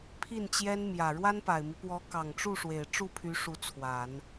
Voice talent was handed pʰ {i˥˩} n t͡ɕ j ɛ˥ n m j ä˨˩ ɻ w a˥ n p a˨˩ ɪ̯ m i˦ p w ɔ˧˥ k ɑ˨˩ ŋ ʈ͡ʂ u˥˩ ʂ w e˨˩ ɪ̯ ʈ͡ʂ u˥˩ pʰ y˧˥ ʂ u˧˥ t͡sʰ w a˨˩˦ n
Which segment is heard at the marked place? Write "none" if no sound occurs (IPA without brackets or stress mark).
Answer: i˥˩